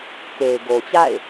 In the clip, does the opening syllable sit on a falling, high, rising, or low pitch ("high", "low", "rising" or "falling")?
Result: low